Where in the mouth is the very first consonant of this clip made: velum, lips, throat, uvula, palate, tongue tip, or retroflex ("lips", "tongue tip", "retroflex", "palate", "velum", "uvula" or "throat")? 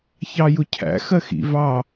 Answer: palate